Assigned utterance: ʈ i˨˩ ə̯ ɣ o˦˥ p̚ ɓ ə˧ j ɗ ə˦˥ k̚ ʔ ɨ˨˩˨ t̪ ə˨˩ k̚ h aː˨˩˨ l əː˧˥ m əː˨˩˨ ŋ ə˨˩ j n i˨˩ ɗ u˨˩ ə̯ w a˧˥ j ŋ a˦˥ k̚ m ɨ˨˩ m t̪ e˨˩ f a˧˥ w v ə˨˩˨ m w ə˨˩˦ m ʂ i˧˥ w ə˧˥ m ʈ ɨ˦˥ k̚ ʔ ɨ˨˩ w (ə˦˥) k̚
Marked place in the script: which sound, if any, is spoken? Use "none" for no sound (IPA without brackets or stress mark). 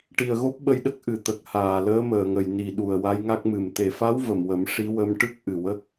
ə˦˥